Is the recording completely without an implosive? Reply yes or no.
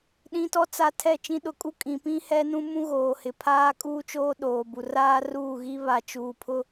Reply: no